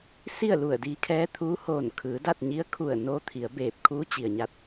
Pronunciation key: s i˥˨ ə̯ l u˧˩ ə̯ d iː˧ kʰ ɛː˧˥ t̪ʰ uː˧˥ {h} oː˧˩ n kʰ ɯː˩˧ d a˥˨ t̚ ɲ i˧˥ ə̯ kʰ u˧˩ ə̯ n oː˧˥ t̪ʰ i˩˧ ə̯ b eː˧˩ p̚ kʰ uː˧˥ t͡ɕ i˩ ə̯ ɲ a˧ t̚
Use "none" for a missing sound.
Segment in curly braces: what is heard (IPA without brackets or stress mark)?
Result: h